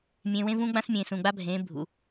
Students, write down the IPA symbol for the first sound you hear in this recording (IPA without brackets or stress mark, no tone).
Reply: mʲ